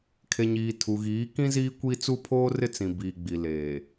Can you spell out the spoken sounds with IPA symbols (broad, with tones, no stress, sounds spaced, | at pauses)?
kʰ e˨ ɲ iː˨ tʰ u˨ ɣ iː˨˦ k ĩ˦ z iː˦ kʷ i˦ t͡s u˦ pʰ oː˦ r ɪ˦ t͡s ĩ˨ b iː˨ ɡ͡b i˨ l eː˨